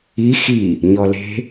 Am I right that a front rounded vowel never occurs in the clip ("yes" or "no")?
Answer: yes